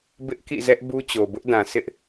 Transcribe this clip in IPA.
bɪ˦ʔkḭ˦˨zɛ˦ʔ bu˦t͡ɕo˨ bʊ˦ʔdã˨ sɪ˦ʔ

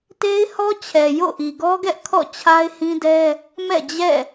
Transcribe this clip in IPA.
te˦ɪ̯hɔ˦t͡ɕʰɛ˨ jo̰˦˨ʔi˨ɡɔ˦ɡɛ˦ʔ kʰɔ̰˦˨t͡ɕʰa˦ɪ̯hĩ˦dɛ˦ | mɛ̰˦˨d͡ʑɛ̰˦˨

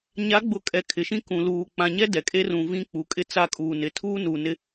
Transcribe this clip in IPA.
ɲa˨˦ɡ͡bʊ˨ kʼɛ˨˦kʰɪ˨ʃĩ˦ kũ˨luː˨ k͡pã˨ɲɛ˦ dɛ˨kʼe˦ rũ˨ vĩ˦ k͡pu˨kʼɪ˦ t͡sa˦˨kʼuː˨nɪ˨ tʰuː˦nu˨nɪ˦

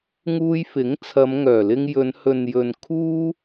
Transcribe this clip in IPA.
ŋuː˧jfɪ˨˥ŋ t͡sʰɐ˨˧mŋœː˨˩lɪ˧ŋjɵ˨˧n hɵ˨njɵ˨n kʰuː˥

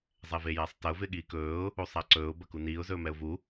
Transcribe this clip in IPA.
zˤɛvejasˤtɐʊ̯ vɪɠiːkɵːʊ̯ | usˤaǀɵːʊ̯ bɐkuniːʊ̯ zɵːmɛʊ̯vu

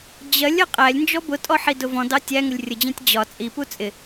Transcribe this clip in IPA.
d͡ʑɜlʲ ɜqʼælʲnd͡ʒɔ bʊtʼɔ ħidʊvɔ̃dɑ tʲæŋʊlʲ rʲəd͡ʑæ̃tʲ d͡ʑɒ t͡sʼipu t͡sʼɪ

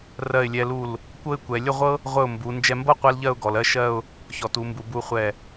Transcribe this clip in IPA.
rɜ˧˩ɪ̯lʲɛ˧lu˧˩l | kʷɤ˥˧ɪ̯kʷɛ˩˧ lʲə˥˧ʁʷɤ˥ | ʁʷə˧˩ʊ̯ mbu˩˧ nd͡ʒɛ˧mbɤ˥ qʷɛ˥lʎɜ˥˧ʊ̯ɡɔ˩˧l ɜ˥ʃɜ˥˧ʊ̯ | çɔ˩˧tu˩˧mbu˩˧ bu˧χʷɛ˧˩

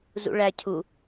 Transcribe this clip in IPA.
zṵɭæ cʰu

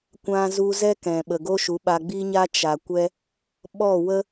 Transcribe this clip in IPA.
kʷã˧zu˧ zɛ˦kɛ̃˨ ɓə˨ɡo˦ʃu˨˦ɓa˧ ɡ͡bi˦ɲa˦ t͡ʃa˨kʷɛ˦ | ɓɔ˦˨wə˦

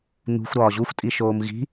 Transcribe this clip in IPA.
n̪ṳxʷ ɾɒːʑuxʷtʼiʃoːm ɣi̤

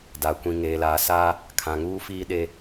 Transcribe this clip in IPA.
da˨ kʷĩ˨ŋeː˨laː˨ sa˦ | kʰã˨ŋuː˦fiː˦ ɗe˦

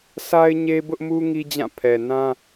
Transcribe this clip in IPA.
sʰa˦ɪ̯ ɲe˦ bʊ˦ʔmu˦ ŋi˦d͡ʑã˦˨ pʰɛ˨nã˦

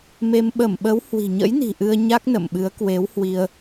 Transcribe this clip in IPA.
me˧m ɓə˧˩mɓə˨˦w hwi̤˨˩ɲə̰˧˥jni̤˨˩ ʔɨ˧ə̯ɲa˦˥k̚nə̰˧˨mɓɨ˨˦ə̯ kwe˨˦whwi˧ə̯

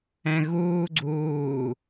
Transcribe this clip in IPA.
ɛ̃ɣuː ɡ͡ǀuː

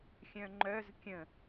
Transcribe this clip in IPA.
xʲœ̃ŋ͡ǃœz kʲə̃

